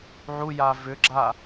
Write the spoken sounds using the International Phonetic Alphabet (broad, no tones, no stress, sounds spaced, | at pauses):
ʕ u j a v ʏ ɡ͡ǁ a